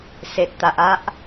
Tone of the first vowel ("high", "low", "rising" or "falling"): low